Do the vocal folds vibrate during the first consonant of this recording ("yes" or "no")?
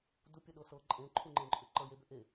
yes